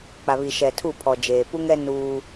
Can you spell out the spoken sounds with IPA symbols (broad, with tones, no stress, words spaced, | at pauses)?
k͡pa˨βi˨ʃɛ˨ tʰu˦˨pʰɔ˨d͡ʒeː˨ pu˦ŋɛ˦ nuː˦